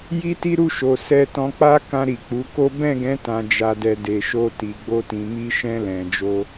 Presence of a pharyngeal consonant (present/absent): absent